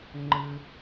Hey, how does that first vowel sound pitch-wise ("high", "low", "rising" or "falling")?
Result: high